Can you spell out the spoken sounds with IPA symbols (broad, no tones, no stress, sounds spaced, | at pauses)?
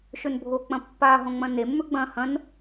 ʃ ɵ n bʱ o k͡p ɐ̃ pː a ɦ õ ŋ͡m ɐ̃ n e mː ɵ ɡ͡b ɐ̃ h ɐ̃ n